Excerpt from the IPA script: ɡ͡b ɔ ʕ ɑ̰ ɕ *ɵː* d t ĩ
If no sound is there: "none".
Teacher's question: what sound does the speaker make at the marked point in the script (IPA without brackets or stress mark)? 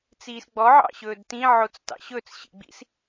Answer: ɵː